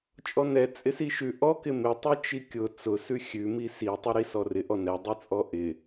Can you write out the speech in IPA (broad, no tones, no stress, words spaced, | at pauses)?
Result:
t͡ʃʼɔnɛ t͡sʼɪsiʃʉ ʔɔ kɪmɪtˤɨ t͡ʃikʲʊ t͡sʊsʉ xʲʉmi sitˤɨɾi sɔrɪ ʔɔnɛdˤit͡sʼɔ ʔɪ